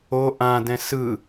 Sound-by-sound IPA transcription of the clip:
o ʔ ã d ɛ̃ s ɯ

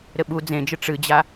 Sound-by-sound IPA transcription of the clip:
ɾ ɘ ɓ u d͡z ẽ d͡ʒ ɨ ʈ͡ʂ ɨ d͡ʑ a

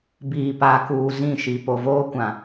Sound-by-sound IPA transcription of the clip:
b iː˨ p a˨ k uː˨ z ĩ˦˨ ʃ i˨ p o˨ v oː˦ kʷ ã˨

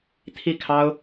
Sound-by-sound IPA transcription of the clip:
t̪ʰ i˥˩ kʰ ɑ˥ ʊ̯

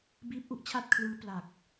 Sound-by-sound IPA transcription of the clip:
b iː˦˥ p̚ ʔ u˦˥ ʔ t͡ɕʰ a˥˩ t̚ kʰ l ɯː˦˥ p l a˨˩ k̚

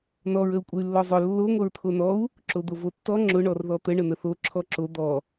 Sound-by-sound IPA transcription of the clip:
n ɔ ɹ ə u̯ kʷʼ ə y̯ lː ɔ zˤ ʊ lː o ŋʷ ʌ ɹ t̪ʰ o n ɔ u̯ | ǁ o d̪ o v o tː ɔ ŋ͡ǁ ʊ ɳ ɔ r ð ɔ t̪ ə ɳ ə n̪ ə θ o ǁʰ ɔ ǁ o d̪ ɔ

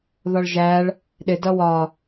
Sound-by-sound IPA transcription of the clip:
ð ɒ ɭ ʒ æ ɭ | ɗ ɪ d ʌ w ɒ

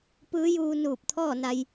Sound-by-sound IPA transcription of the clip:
p ɯː˧˥ j uː˧ n uː˧˩ p̚ t̪ʰ ɔː˥˨ n a˧ j

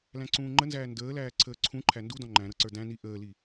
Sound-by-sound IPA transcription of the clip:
l æ̃ ǀ ũː ŋ͡ǃ ə n z æː n d əː l æː ǀʰ əː ǀʰ ũ ǃʰ æ n d u d ɔ̃ ŋ͡ǃ æ̃ ɾ ɤ ǀ ə˞ d æ̃ n i ʔ əː l i

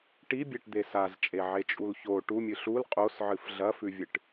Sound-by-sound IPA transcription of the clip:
ʈ i bʲ e ʈ d̪ e s a z t͡ʃʼ e ʕ e t͡ʃʼ u l ç o ʈ u mʲ ɨ ɬ u l qʼ o s ʕ ɨ f ɮ ɐ f ʉ vʲ ɨ ʈ

